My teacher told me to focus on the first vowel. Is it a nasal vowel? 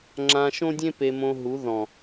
yes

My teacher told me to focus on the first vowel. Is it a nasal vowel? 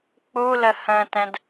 no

